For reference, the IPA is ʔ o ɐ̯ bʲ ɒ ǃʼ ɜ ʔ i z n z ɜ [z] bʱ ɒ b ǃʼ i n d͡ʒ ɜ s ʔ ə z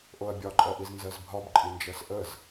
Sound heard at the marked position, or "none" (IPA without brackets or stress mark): z